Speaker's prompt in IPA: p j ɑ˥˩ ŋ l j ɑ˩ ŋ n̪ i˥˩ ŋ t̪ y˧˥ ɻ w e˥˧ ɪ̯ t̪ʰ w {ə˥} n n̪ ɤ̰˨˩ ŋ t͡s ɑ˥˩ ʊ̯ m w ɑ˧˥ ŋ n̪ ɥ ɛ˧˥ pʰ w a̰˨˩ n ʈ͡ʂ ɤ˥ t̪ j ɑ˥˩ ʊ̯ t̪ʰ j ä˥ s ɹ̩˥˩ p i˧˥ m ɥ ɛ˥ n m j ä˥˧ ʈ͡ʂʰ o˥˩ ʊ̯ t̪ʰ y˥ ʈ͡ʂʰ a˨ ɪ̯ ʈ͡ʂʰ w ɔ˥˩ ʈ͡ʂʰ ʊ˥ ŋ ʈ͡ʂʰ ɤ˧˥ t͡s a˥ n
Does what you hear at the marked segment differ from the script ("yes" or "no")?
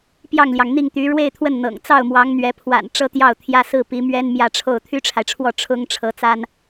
yes